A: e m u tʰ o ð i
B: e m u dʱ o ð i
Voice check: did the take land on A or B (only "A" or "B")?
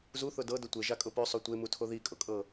A